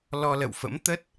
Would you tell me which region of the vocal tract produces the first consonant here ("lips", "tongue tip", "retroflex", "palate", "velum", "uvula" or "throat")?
tongue tip